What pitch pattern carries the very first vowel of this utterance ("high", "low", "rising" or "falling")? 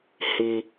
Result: low